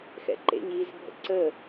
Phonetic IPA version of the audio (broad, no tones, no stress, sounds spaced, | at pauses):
x ɛ̰ ǃ ḛ ɲ iː z bʱ ə̰ ǀ ə